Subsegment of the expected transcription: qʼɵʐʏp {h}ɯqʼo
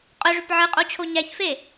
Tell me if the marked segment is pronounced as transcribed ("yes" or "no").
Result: no